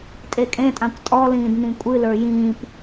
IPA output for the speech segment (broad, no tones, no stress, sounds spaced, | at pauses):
tʼ e kʼ ẽ tʼ ã kʷ tʼ ɔ l ĩː d n ĩ kʷʼ ɨ l ə˞ j ĩː p